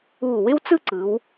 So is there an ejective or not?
no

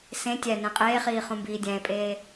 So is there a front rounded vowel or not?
no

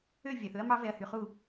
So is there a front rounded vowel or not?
yes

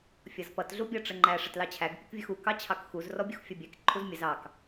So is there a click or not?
yes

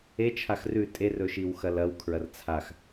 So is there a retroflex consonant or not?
no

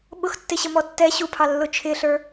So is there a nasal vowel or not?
no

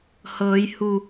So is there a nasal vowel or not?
no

